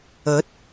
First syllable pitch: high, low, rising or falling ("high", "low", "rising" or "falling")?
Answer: rising